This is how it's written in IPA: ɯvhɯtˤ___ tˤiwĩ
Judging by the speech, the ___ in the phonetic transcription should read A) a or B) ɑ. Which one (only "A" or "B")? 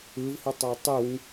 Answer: A